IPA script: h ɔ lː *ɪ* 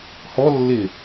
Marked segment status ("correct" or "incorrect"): correct